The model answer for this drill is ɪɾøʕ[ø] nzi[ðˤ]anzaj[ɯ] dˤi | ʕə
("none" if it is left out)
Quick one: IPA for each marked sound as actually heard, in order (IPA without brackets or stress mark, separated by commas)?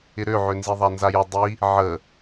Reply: ø, ðˤ, ə